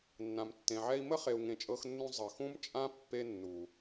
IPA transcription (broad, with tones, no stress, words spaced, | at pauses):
nːã˨mtːẽ˨ʕɛ˧i̯mə˦ χe˨u̯ŋẽ˨t͡ʃʼɤ˧xnːũ˧ zˤə˨xũ˦m t͡ʃʼã˦ pːe˧ nːu˨